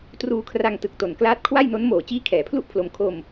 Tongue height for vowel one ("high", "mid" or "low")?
high